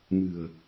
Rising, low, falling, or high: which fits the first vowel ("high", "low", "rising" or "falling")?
low